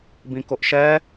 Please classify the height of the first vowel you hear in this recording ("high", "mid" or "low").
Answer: high